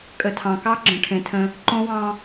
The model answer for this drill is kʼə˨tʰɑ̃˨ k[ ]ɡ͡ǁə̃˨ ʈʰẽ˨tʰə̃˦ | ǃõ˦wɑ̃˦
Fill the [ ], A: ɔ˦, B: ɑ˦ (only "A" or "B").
B